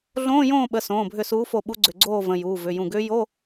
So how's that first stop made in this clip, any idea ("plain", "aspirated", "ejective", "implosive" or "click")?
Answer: implosive